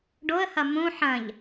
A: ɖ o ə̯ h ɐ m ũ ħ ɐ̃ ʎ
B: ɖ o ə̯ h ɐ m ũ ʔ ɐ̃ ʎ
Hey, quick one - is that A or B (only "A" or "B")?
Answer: A